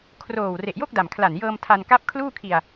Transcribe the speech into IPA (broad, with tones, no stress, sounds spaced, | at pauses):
kʰ r oː˨˩ w r e˨˩ ʔ j o˥˩ k̚ d a˨˩ m kʰ l a˨˩ n j ɤː˧ m tʰ a˧ n k a˦˥ p̚ kʰ l uː˥˩ kʰ i˧ a̯